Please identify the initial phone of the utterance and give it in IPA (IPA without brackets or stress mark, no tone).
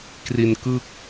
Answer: k